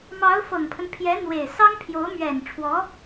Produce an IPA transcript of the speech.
m ɑ˧˥ ʊ̯ f ɤ˨˩ ŋ pʰ ə˦ n pʰ j ɛ˧˥ n̪ w e˨˩ ɪ̯ s ɑ˥ ŋ pʰ j o˧˥ ʊ̯ m ɥ ɛ˨˩ n ʈ͡ʂʰ w ɔ˧˥

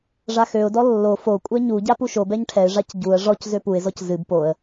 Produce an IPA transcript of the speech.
ʐ a x ø ʊ̯ d ɔ lː o f o kʷʼ ɛ ɲ u ɟ a p u ʃ o b ɛ ɲ ʈʰ ɛ ɪ̯ ʐ a c ɟ u ə̯ ʐ ɔ c z ø p u ɪ̯ z ɔ c z ɨ b p o ə̯

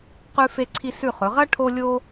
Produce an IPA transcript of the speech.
q ʉ˥ f e˥ ǀʰ i˥ s ʉ˦˨ χ ɵ˨˦ ʁ ɐ˥ ʈʰ o˥ lʲ o˥

